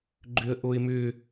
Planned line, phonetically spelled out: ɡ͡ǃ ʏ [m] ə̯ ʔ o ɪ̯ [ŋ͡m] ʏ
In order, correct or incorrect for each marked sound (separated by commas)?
incorrect, incorrect